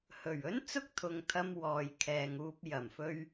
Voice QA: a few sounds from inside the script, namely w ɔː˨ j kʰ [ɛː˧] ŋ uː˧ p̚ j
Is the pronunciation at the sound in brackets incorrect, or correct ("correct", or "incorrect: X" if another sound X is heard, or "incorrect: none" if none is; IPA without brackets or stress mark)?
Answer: incorrect: ɛː˨